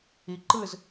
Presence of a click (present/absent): present